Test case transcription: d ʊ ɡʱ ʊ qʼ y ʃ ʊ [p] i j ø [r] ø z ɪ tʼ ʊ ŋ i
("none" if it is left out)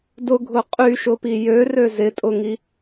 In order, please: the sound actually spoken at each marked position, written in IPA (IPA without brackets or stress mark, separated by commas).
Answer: p, r